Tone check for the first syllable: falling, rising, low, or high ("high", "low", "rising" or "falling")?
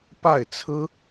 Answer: falling